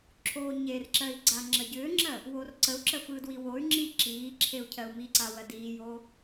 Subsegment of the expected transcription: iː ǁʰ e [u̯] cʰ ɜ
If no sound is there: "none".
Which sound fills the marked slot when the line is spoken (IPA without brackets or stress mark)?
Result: u̯